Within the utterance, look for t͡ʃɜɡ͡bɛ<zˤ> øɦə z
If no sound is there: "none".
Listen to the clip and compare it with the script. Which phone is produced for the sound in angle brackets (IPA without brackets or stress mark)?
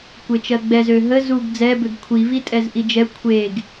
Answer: z